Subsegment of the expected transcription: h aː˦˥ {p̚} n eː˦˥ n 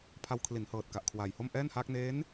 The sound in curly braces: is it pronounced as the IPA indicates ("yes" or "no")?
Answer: no